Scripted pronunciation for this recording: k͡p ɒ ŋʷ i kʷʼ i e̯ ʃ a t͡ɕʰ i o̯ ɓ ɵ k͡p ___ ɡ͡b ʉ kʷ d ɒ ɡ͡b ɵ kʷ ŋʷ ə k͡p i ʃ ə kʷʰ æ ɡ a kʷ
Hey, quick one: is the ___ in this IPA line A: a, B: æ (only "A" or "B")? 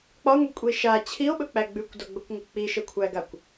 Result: B